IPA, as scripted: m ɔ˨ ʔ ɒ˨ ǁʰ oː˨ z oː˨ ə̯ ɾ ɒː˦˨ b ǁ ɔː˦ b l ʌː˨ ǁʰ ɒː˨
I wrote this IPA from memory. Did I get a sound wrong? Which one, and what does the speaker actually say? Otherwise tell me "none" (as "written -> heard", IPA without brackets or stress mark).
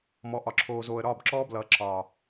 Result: none